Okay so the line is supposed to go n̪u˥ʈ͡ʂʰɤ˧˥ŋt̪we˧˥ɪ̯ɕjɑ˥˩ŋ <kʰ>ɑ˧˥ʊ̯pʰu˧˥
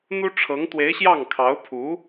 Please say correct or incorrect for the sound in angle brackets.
correct